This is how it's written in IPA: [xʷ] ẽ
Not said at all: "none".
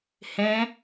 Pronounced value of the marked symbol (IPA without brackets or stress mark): h